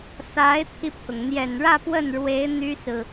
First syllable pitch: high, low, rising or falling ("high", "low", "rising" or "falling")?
rising